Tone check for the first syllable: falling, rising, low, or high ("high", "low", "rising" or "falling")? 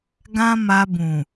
high